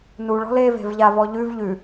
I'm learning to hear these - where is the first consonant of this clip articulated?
tongue tip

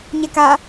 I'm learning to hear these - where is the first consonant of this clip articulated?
palate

